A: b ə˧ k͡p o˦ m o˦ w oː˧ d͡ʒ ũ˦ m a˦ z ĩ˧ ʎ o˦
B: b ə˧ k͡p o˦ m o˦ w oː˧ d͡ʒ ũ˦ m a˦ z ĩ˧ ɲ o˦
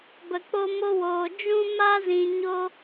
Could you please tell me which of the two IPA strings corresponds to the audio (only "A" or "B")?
B